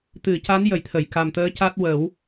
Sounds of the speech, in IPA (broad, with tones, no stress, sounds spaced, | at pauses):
t̪ ɨ˨˩˦ c a˧˥ n j ə˨˩˦ j t̪ʰ ə˨˩˨ j k a˨˩ m t̪ əː˧˥ c a˦˥ t̚ w ə˨˩˦ w